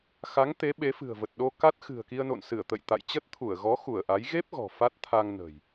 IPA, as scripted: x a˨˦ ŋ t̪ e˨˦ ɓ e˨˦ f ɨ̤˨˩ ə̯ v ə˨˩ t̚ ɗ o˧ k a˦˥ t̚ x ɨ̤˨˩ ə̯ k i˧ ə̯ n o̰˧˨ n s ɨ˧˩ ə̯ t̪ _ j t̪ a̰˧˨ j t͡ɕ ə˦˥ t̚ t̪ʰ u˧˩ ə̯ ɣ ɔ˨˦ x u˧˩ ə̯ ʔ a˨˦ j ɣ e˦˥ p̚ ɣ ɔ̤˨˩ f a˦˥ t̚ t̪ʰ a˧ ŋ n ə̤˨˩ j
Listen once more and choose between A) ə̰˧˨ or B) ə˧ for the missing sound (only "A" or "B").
A